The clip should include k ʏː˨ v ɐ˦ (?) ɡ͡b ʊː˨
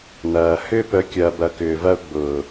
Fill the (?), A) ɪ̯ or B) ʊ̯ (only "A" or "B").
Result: B